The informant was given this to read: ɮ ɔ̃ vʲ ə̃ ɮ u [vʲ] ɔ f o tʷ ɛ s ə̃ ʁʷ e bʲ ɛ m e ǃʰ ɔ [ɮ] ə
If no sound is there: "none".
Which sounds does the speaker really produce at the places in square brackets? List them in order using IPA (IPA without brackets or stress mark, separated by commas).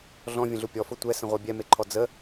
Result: pʲ, d͡z